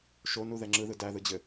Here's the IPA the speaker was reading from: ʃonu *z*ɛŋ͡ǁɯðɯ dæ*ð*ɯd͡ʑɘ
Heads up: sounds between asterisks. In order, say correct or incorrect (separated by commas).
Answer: incorrect, correct